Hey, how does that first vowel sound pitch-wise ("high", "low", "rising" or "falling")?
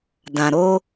low